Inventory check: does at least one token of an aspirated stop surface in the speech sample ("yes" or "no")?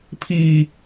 yes